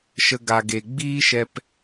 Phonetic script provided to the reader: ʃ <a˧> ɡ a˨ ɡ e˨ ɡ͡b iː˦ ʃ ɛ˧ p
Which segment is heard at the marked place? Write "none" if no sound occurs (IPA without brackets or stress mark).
ə˧